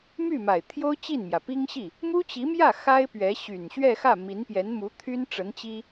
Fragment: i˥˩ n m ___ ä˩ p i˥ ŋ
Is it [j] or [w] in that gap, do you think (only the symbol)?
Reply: j